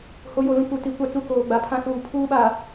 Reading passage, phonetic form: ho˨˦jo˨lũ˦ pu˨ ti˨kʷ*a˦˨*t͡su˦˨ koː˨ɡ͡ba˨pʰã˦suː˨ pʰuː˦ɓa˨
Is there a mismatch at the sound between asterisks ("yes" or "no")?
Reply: no